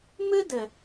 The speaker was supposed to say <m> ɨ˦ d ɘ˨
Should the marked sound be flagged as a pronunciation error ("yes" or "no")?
no